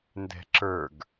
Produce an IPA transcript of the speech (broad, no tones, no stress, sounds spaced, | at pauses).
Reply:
n d ɛ̤ ǁ ə˞ ɡ